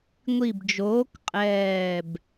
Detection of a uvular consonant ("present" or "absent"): present